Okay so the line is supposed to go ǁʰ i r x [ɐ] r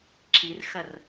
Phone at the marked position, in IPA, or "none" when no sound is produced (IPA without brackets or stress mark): ɐ